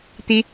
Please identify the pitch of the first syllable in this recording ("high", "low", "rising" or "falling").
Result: high